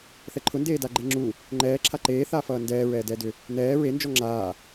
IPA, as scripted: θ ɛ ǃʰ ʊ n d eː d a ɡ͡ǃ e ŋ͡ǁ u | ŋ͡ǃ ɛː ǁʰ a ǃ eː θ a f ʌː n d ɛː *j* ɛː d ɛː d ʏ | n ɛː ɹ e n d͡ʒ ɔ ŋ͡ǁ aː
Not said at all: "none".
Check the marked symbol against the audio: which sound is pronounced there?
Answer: ɹ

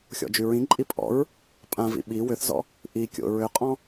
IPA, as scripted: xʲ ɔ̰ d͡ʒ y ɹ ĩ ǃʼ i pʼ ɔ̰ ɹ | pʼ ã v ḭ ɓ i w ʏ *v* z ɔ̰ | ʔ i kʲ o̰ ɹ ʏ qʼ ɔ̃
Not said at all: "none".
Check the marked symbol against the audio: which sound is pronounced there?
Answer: θ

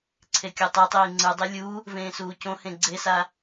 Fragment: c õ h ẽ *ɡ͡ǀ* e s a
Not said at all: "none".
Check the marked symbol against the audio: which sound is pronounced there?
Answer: ɡ͡ǀ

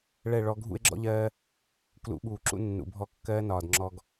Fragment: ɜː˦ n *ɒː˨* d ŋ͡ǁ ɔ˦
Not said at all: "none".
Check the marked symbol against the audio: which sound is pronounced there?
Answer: ɒː˨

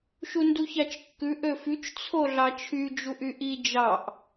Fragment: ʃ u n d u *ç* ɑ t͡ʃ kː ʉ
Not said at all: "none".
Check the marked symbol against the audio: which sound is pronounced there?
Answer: ç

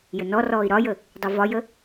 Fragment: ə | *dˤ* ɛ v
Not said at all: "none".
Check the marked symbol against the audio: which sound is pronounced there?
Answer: dˤ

